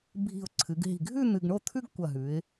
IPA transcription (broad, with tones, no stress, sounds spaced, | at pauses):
bʱ i̤˧˩ ʊ̯ ǀʰ ɨ˩˧ ɡ ɦ i̤˧˩ ɡʱ ʉ˥˧ n̪ ɨ˧ ɡ ɳ o˥˧ t̪ʰ ʉ˥ ɡ kʷ ɐ˧˩ ɦ ʉ˩˧ ɪ̯